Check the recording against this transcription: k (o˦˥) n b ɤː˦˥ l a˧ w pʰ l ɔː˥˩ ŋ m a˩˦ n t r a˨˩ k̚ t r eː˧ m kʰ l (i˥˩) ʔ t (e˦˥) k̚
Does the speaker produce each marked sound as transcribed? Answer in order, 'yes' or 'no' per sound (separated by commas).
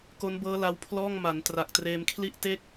yes, yes, no